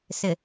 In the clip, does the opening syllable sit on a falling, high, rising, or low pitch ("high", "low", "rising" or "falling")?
low